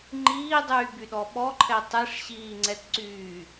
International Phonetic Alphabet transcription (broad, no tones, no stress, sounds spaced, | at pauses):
ŋ͡ǃ iː dˤ yː b y ɗ ɔ ɓ ɔ ǃʰ ɛ tˤ e ʂ ɕ iː ŋ͡ǀ ɛ t ǀ yː